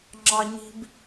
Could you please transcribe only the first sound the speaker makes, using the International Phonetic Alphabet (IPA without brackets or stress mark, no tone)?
ŋ͡ǁ